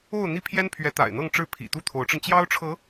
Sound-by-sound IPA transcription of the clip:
o˥˧ʊ̯n̪i˥˩pʰjɛ˥npʰɥɛ˧˥ t̪a̰˨˩ɪ̯n̪ɤ˥˧ŋʈ͡ʂɻ̩˥˩ pʰḭ˨˩t̪u˥˩t̪ʰo˧˥ʊ̯ʈ͡ʂə˧n t͡ɕjɑ˥ʊ̯ʈ͡ʂʰɤ˧˥

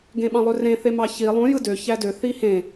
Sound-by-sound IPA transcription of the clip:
ɡẽɓɑ̃lˠørẽ θemɑçi lˠũ jɯdø çædø θihẽ

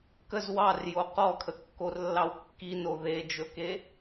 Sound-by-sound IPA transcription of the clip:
kəz wɑrjo qɔkʰəkːorlːɑw kːino ðed͡ʒɵke

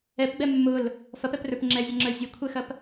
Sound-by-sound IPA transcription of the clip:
ɛpɡ͡bɛ mːʊl | fɐpɛprə˞p ŋ͡ǁɛzʲɐŋ͡ǁə˞ zʲɐkʷʰɛxɐp

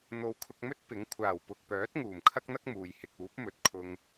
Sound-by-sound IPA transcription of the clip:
n̪o˨wkʰʊ˧k̚mɵ˥t̚ pɪ˨˥ŋ kʷʰaː˨˩wpʊ˨k̚pœː˨˥t̚ ŋuː˨˩mkʰɐ˥k̚n̪ɐ˥k̚ muː˨jhɪ˧k̚ uː˨˥p̚mɵ˨t̚kʰʊ˧ŋ

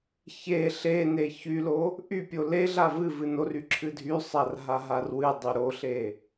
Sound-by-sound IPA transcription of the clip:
çe ɬene çylo | ʔypʲo leɮa vɨ vɨnory ǁʰɨdʱysˤar ɦaɦarwɨdˤy ɾoɬe

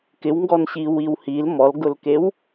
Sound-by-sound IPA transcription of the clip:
kɪwŋɡɔnɕiwiw hil mɔlɡʊlkew

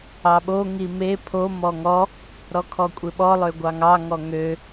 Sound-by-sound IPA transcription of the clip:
ɑɓo ŋime pʰo mɔŋɔ | ɾɔkʰɔkʷʼeɓɔ lˠøɡʷɑŋɑ ŋɔŋø

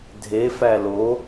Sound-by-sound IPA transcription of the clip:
dʱefæ lo

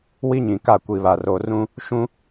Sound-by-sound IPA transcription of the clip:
wi˦ɲĩ˨ka˦˨ kʷi˨βa˨r o˨ rũ˦ | ʃũ˦

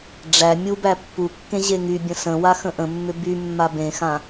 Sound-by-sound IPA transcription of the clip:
ɖ͡ʐæ mʲubæ pːukːẽ ʑeŋybʲə̃ sə̃wa xə̃ʔə̃mːʏ by mːabẽxã

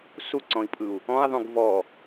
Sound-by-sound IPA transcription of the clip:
suǀɔ̃i̯pʼɯu̯ | ɔ̃i̯ðˤũɡ vɔ

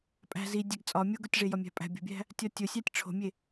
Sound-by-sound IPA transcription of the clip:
pʼæ̤ zi dʲæɡt͡sʼɒ mʲoɡotʲʐe jɒmʲæ̤pʼæ̤ bʲo̤bʲæ̤ | tʲɒtʲosʲætʲ ʈ͡ʂʰo̤mʲe

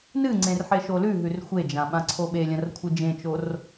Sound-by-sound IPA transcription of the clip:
nɨŋ͡ǀẽr ħeʃolʉɦʉr xʷed͡ʒã ɓãǀʰoɓelʲɐ̃r kʷʰɨd͡ʒẽt͡ʃor

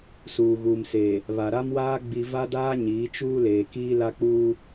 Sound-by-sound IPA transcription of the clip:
suː˨ɣuː˨mseː˨ | βa˨ɾa˦mwaː˦ ɡ͡bi˨va˦daː˦ ɲiː˨˦t͡ʃuː˦ leː˨kiː˦ la˦k͡puː˦

